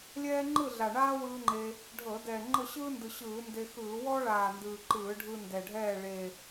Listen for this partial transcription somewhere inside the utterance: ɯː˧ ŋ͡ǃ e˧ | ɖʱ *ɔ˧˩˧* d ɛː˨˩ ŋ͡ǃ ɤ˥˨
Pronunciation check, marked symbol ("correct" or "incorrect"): incorrect